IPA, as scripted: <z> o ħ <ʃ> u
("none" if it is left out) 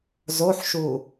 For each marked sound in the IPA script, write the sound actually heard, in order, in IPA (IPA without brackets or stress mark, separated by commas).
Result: z, ʃ